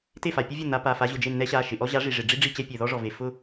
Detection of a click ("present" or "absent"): absent